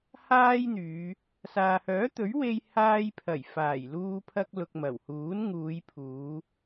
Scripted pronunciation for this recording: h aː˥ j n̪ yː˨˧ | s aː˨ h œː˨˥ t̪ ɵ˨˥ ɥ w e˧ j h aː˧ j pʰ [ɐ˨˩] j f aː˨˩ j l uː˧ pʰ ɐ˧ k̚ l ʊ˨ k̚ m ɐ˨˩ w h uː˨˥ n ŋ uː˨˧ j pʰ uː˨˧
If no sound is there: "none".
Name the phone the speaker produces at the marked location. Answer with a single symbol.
ɐ˨˩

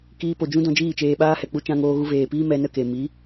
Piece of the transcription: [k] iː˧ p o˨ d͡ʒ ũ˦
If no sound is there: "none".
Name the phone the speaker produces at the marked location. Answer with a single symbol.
k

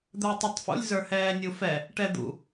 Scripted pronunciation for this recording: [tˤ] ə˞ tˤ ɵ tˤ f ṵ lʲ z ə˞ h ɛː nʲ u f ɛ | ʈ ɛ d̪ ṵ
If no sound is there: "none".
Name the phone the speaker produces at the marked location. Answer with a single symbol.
d̪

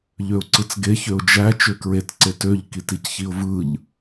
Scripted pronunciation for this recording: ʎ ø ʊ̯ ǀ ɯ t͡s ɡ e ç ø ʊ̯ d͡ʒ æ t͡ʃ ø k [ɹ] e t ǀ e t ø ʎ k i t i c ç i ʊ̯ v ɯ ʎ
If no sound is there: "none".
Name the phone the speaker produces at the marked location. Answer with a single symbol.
ɹ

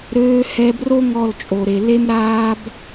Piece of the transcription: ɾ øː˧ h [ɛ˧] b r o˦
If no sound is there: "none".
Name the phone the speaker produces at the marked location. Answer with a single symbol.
ɛ˧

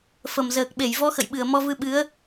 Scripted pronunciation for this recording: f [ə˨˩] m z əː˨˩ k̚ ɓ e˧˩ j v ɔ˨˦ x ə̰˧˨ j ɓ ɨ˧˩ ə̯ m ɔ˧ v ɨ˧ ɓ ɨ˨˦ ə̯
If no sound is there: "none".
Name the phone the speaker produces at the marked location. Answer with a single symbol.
ə˨˩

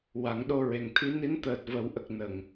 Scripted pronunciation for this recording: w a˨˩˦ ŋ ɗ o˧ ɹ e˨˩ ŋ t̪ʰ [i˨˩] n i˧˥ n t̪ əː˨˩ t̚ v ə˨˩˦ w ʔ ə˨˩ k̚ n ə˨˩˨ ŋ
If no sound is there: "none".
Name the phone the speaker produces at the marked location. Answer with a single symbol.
i˧˥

